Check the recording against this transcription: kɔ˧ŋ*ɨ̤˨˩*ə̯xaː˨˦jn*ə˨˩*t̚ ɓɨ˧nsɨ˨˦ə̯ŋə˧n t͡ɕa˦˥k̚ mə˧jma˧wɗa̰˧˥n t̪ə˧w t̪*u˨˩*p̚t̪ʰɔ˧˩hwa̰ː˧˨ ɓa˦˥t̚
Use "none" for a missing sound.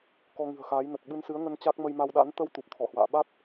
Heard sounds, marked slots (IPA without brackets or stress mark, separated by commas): ɨ̤˨˩, ə˨˩, u˨˩